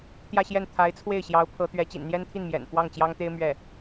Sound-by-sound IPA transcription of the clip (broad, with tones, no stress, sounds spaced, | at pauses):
t̪ j ä˥˧ ɕ j ɛ˥˩ n t̪ʰ a˧˥ ɪ̯ t͡sʰ w e˥˩ ɪ̯ ɕ j ɑ˧˥ ʊ̯ pʰ ɤ˧˥ t̪ ɥ ɛ˧˥ t͡ɕ ḭ˨˩ n n̪ j ɛ˥ n t̪ʰ i˥˩ n m j ɛ̰˨˩ n f w ɑ˥˩ ŋ t͡ɕ j ɑ˥ ŋ t̪ e˥ ɪ̯ m ɥ ɛ˥˩